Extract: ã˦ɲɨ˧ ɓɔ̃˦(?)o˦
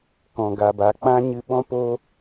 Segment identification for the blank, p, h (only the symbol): p